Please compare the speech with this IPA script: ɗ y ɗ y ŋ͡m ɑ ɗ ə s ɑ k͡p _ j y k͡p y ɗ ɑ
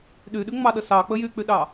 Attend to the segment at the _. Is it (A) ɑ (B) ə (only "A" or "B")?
B